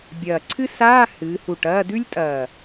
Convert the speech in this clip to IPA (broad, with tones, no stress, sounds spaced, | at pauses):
bʲ ɐː˨˩ ǀʰ ɨ˥ s aː˧˥˧ h ɨː˩˧ h u˨˩ ʈ ɐː˧˥˧ d ʉ˥ lʲ tʼ ɐː˨˩